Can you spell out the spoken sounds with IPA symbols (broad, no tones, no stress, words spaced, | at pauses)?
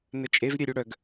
nət͡ʃʼev ɾʲeɾʲuɽœɡ